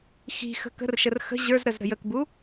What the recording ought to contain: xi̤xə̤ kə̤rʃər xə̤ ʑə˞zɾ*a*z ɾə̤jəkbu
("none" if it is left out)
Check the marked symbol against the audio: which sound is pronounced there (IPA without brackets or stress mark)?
ə